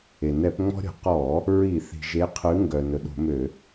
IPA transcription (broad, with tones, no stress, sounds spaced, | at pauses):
e˩ n ɛ˧˩˧ p ŋ͡m ɔ̤˦ ɾʲ ɔ̤˩ q ɔ˧˩˧ | ɹ i˧˩˧ θ i̤˩ ʒ e˨˦ qʰ ʉ˨˦ ŋ ɡ œ˩ n ɵ˩ ɗ o̤˧˩˧ m ø˧˩˧